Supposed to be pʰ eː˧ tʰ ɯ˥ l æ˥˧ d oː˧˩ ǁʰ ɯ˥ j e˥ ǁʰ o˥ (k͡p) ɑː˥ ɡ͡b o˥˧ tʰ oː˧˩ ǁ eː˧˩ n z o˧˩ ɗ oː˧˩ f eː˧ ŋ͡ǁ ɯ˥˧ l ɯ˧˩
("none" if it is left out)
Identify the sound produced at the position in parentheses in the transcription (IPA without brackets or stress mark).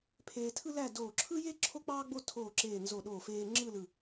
k͡p